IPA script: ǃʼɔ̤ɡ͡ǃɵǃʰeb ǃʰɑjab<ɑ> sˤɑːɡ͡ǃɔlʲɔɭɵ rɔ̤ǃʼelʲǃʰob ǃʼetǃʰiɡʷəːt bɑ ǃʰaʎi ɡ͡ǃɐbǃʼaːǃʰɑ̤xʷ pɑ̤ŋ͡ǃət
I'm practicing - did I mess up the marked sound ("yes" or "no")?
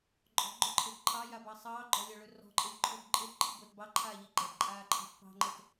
no